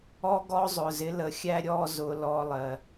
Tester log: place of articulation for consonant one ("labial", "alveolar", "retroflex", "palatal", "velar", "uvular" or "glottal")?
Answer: velar